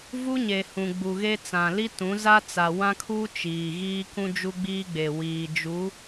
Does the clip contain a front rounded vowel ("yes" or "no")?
no